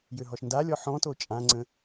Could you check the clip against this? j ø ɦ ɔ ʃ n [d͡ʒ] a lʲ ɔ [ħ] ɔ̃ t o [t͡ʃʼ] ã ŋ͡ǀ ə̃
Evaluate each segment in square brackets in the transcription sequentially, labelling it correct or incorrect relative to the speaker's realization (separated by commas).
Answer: incorrect, correct, correct